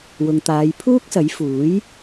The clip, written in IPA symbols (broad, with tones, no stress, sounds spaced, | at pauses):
w ʊ˨ ŋ t̪ aː˨˧ j pʰ uː˥ k̚ s ɐ˨˥ j f uː˨˥ j